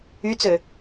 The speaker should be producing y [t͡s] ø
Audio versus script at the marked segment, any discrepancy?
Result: no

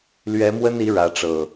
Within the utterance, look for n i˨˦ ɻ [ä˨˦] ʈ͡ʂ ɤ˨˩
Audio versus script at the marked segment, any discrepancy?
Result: no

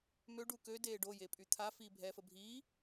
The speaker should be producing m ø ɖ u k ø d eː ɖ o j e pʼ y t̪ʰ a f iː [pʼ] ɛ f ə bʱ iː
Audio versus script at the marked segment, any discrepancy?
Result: yes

